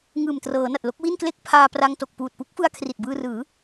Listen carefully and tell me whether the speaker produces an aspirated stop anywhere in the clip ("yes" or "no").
yes